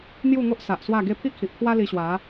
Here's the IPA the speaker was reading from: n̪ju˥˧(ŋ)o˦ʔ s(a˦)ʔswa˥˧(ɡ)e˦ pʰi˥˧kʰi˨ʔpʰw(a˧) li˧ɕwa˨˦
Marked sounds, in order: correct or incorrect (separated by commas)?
correct, incorrect, correct, incorrect